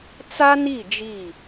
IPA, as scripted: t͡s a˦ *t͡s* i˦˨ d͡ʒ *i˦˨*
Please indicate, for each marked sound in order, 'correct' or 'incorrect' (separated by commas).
incorrect, correct